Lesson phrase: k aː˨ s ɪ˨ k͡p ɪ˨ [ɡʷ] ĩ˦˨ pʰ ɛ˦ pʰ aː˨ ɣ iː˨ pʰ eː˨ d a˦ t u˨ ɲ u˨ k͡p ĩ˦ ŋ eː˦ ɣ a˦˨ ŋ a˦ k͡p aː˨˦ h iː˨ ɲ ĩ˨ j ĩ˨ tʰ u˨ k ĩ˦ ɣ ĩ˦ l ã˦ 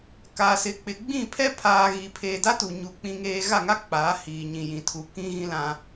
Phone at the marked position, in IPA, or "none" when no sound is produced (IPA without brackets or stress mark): ɡ͡b